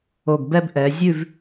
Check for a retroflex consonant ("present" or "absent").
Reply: absent